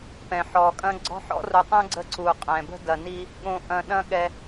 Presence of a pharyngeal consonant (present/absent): present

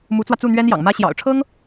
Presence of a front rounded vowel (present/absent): absent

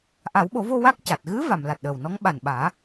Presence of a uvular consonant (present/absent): absent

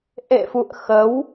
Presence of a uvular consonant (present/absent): absent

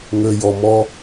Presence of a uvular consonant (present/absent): absent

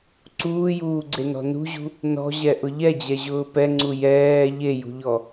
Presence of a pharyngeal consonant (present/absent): absent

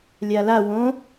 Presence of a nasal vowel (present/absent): present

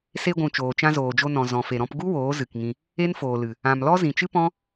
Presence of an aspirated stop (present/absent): absent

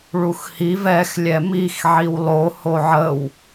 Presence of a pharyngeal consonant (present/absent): present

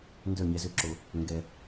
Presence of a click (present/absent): present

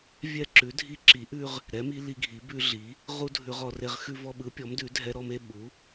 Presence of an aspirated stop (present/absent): absent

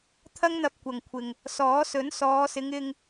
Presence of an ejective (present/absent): absent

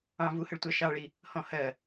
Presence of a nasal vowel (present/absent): present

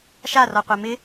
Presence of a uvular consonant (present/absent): present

